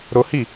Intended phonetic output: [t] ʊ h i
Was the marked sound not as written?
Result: yes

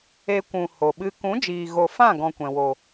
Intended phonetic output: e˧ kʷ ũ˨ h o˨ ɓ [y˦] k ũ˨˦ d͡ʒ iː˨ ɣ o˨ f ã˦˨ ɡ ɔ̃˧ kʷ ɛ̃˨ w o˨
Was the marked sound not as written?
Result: yes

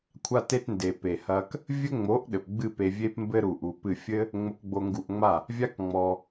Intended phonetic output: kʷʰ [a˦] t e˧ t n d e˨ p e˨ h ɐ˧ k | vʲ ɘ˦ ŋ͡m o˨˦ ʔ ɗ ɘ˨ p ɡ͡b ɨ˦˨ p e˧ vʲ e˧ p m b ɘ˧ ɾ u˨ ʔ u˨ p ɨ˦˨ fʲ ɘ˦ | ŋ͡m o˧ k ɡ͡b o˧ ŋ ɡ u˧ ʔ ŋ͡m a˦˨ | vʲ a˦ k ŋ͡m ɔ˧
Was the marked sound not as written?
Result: yes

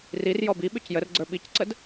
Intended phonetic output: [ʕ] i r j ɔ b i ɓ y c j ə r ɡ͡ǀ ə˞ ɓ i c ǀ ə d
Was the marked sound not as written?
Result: yes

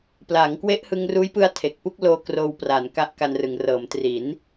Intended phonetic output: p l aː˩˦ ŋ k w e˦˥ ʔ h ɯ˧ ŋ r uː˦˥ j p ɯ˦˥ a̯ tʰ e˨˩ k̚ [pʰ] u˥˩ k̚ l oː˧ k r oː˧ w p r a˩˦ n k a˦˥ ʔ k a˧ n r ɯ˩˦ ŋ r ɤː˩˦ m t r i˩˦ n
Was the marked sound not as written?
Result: yes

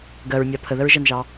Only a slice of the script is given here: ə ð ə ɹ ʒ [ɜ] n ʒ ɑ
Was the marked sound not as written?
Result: no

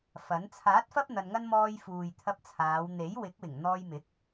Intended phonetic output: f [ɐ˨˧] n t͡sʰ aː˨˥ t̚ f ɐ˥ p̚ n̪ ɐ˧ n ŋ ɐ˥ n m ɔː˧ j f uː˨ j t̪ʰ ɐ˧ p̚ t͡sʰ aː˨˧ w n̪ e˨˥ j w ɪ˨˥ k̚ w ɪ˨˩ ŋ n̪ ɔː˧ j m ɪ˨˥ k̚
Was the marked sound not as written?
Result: yes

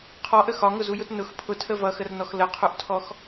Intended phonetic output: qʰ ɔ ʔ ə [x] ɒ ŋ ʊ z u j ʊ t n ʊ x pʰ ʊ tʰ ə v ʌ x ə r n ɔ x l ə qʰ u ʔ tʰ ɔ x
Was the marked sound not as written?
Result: no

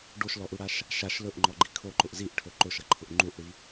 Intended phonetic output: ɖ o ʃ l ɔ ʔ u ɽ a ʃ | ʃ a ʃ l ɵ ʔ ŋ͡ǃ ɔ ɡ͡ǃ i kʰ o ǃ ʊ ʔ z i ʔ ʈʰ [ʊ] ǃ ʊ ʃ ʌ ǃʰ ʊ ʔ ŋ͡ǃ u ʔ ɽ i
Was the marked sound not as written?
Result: yes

